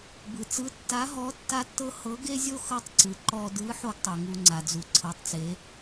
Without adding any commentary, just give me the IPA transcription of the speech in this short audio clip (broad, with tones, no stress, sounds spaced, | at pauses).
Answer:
b ɯ˩ t͡s ɯ˧˥ tː a˧˥ ɦ ɔ˧˥ tː a˥ tː ɤ˥ h ɤ˧˥ ɡ e˥ zʲ o˥ x ɤ˥ tˤ ǀ ɯ˩ ǃ ɔ˧ d ɯ˧˥ ħ o˥ ɡ tˤ u˩ ŋ u˧ ŋ͡ǀ a˩ d͡z u˩ ǀʰ ɤ˩˧ tˤ t͡s e˩˧